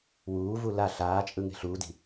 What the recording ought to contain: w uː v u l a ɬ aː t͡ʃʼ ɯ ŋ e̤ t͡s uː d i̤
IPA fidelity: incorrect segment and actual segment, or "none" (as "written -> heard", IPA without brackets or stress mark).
t͡s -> ɬ